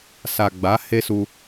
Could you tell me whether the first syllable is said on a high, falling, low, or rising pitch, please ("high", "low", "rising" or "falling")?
low